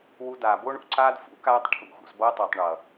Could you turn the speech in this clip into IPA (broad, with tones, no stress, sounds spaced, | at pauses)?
w u˧ d aː˨ b o˦ ɳ ṵ˨ ǀ aː˦ d f ṵ˨˦ k aː˧ tˤ ʈʰ ṵ˨ x ṵ˨ s b ʌː˧ tˤ a˨ tˤ ɳ ʌ˨